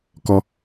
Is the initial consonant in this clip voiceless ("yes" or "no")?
yes